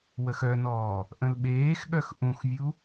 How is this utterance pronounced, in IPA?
w ə x œ n ɔː | ʔ ə̃ l ɓ eː x ɠ œ x ʔ ũ x vʲ u

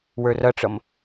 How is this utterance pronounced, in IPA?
w ə˞ r ʌ ʈ͡ʂ ʌ m

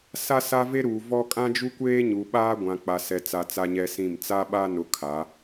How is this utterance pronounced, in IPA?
s a˦ s a˦ v e˦ ɾ uː˨ v ɔ˦ kʼ ã˦ d͡ʒ u˦ kʷ eː˦ ɲ u˨ ɓ aː˦ ɡʷ ã˨ k͡p a˨ s ɛ˨ t͡s a˨ t͡s a˦ ɲ ɛ˦ s ĩ˦˨ m t͡s a˦ ɓ a˦ n ʊ˨ kʰ a˨˦

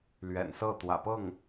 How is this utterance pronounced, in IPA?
l ɥ ɛ̰˨˩ n s ɤ˥˩ t̪ w ä̰˨˩ p ɤ˥˩ ŋ

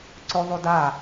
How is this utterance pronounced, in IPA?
ǀ ɵ ðˤ o d a

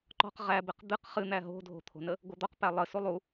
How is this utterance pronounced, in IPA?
ǃ ɔ̤ q ʁ æ b ɪ q d̪ ɨ q χ ɨ n̪ æ ɦ o̤ dʱ o̤ t̪ʰ o̤ n ə | ɡʷ ʌ d̪ ɔ q p æ lˠ ə s u lˠ u

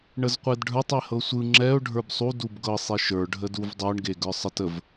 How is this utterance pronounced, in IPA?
ɳ ə z qʷ e d ɖʱ ə˞ tˤ e h ɤ sʷ ɯ ŋ͡ǁ ɛ ʊ̯ ɖʱ ə˞ b sˤ u d u b ɡ ɤ sˤ e ʃ ə˞ ɖʱ ə d u v dˤ ɤ ɳ ɡ e ɡ ə˞ sˤ ə t ə v

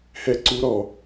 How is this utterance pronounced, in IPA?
h ɛ ǀ u ɾ ɔ

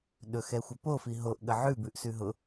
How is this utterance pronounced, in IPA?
ɗ ɵ x ɛ xʷ ə p o f i ɦ o ʔ ɠ ə ʕ ʉ b ʉ ʔ s ʉ ɦ ʊ

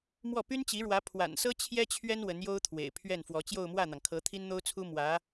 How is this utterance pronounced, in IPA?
m w ɔ˥˩ p y˥ n t͡ɕ i˧˥ ɻ w ä˧˥ pʰ w a̰˨˩ n s ɤ˥ t͡ɕʰ j ɛ˥ t͡ɕʰ ɥ ɛ˥ n w ə˧˥ n j o˥ ʊ̯ t̪ʰ w ḛ˨˩ ɪ̯ pʰ ɥ ɛ˥˩ n f w ɔ˧˥ t͡ɕ j o˥˧ ʊ̯ m w ä˥˩ n̪ ɑ˩ ŋ kʰ ɤ˧˥ t̪ʰ i˥ n n̪ o˥ ʊ̯ t͡sʰ u˥ m w ä˧˥

